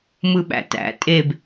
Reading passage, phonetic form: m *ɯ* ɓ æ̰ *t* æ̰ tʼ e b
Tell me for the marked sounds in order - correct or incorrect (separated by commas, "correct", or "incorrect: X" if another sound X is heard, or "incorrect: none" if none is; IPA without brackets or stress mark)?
correct, correct